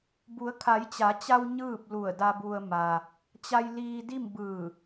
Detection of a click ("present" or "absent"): absent